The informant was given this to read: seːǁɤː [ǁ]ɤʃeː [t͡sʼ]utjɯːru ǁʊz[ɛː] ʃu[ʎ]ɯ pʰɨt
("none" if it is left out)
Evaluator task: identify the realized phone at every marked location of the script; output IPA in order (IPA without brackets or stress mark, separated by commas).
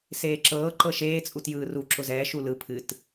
ǃ, t͡sʼ, ɛː, l